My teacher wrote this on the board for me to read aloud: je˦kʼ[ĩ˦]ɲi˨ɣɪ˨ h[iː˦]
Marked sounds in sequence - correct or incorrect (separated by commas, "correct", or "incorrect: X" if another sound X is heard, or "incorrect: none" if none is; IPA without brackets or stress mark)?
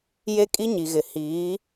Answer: incorrect: i˦, incorrect: iː˨˦